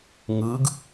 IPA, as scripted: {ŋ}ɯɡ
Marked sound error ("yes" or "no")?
no